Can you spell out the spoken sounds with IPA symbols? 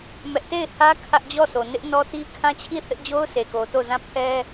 mɛ˦ʔ te˦˨ɪ̯hä˦ kʰä˦ʔd͡ʑɔ˦˨so˨ nɪ˦ʔnɔ˦ti˦ kʰã˦t͡ɕʰi˦˨θɪ˦ʔd͡ʑo˦ʊ̯ se˨ko˨to˦˨ zã˦˨ pʰɛ˦

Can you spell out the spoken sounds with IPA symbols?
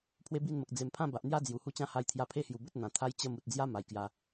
pʰwe˦bi˥˧nmə˨k̚ d͡ze˨˩mpʰã˥˧ba˨ʔn̪ja˦ d͡zju˨˩hu˦t͡ɕã˦ ha˧jt̪ʰja˧ pʰe˥˧hju˨˩bə˦t̚ n̪ã˨˩ t̪ʰa˦jt͡ɕə˥˧mu˨t̚ d͡zja˦ ma˨˩jkja˧

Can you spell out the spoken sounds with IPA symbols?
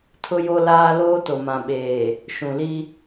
tʰʊ˦jo˦ laː˦ loː˦to˨mã˨ɓeː˨ | ʃũ˨li˦

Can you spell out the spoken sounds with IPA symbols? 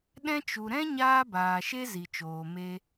ɗɛ̃˧t͡ʃu˨ɾɛ̃˦ɲaː˧ baː˨ʃe˦ zi˨t͡ʃoː˨me˧

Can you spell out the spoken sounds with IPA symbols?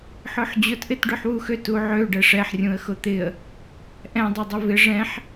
ħʊħd͡ʑʊt ʔɪtɖʏħwuxøt uʕø ɖɛʂɛħ rʲũə̯xʊt̪ɪə̯ | ʔɛ̃ dˤødˤʏvɪ ʐɛ̃ħ

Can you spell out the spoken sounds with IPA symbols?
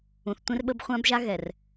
ũ˨θtʷẽ˦rɓə˦b χʷã˦bʒa˦ ɣɛ˨r

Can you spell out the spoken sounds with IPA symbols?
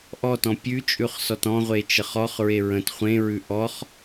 ʔɔtɔ̃ pʲʉt͡ʃʼʉχ sɔtɔ̃ʁʷe t͡ʃəχɔχɹe ɹə̃t χʷẽɹʉ ʔɔχ

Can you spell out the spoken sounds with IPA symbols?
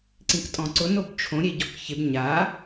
ǀĩktʼɔ̃ǀʊ nobt͡ʃʰõ ɾʲeɟɔkçɪb ɲa

